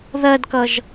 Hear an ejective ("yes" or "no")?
no